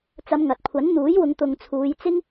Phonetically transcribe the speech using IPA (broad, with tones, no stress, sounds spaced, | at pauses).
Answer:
t͡s ɐ˨˧ m ŋ ɐ˨ t̚ kʷʰ ɐ˨˥ n n̪ uː˨˥ j w ʊ˨˧ ŋ t̪ ʊ˨ ŋ t͡sʰ uː˨˧ j t͡s ɪ˥ ŋ